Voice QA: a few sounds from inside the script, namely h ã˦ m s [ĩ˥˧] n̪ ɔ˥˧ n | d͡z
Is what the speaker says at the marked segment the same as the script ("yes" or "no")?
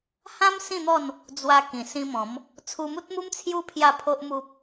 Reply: yes